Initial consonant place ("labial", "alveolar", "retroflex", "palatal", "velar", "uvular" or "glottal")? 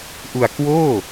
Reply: glottal